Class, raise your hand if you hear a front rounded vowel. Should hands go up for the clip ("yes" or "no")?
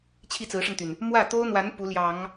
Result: yes